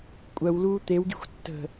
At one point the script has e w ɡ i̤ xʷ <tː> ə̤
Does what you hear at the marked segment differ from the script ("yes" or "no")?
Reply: no